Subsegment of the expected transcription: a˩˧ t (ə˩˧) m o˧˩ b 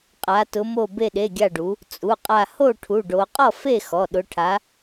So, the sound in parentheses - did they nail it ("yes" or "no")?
no